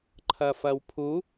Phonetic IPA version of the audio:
ǃʰ ɐ f ɐ w pʰ u

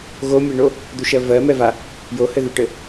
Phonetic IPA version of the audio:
ɣ o mʲ ɛ ɳ o | d̪ u ʃ ɜ v ɜ m ɛ v a | j o h ɘ ð u ʈ ɘ

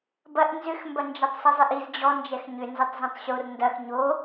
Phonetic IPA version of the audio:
b ɐ ʔ n z ʏ x m b ɐ n d͡ʒ ɐ tˤ sˤ i zˤ e ʔ i z d͡ʑ ɔ n d͡ʒ ɛ x ɲ ʏ n z ɐ tˤ z õ tˤ ɕ o r n d ɐ x ɲ o

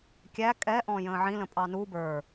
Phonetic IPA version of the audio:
kʲ æ kʼ ɛ ʔ ɔ̃ j ə̃ː ʕ ĩ l ə̃ pʼ ɑ n u b ə˞

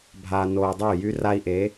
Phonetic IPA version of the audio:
bʱ aː˨ n oː˨ dˤ yː˦˨ j y˦ r a˦ i̯ ʔ e˨˦

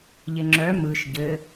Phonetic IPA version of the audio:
ʎ ɪ ŋ͡ǁ œ m ɯ ʃ ɟ ɘ

